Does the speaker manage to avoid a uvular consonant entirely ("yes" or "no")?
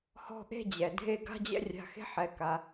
yes